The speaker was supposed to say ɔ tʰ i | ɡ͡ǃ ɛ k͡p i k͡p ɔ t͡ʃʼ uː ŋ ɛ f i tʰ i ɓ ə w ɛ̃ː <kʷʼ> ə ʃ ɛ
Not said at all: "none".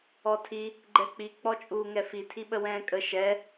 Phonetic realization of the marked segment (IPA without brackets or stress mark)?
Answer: kʼ